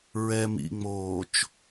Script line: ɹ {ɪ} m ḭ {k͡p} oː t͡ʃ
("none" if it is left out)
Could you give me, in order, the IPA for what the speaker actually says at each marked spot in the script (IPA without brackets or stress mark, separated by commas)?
ɛ, ŋ͡m